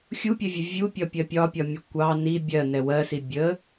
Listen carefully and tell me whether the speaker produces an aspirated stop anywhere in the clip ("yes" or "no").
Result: no